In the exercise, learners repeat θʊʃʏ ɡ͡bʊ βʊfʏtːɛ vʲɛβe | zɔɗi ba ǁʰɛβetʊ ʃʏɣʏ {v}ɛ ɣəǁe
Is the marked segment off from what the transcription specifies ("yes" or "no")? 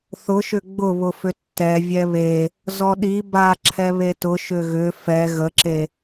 yes